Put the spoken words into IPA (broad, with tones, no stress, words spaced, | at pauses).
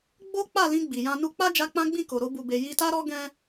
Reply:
ɡ͡bo˦k͡pa˦˨lĩ˧ ɡ͡bi˨jã˧ nu˧k͡pa˦d͡ʒa˧ k͡pã˦ɡ͡bĩ˦˨ko˨ ɾo˧bu˨be˨ ji˧ta˦ɾɔ˦ ɡɛ̃˦